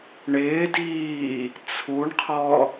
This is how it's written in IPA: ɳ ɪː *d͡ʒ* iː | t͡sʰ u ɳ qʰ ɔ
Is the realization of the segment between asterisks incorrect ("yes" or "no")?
yes